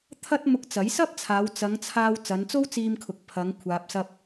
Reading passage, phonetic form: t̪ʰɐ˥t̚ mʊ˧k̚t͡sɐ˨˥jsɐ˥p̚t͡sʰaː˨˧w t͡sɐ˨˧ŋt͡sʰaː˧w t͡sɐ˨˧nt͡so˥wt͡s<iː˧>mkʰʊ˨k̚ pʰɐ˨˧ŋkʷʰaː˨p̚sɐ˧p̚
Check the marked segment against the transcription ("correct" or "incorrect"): correct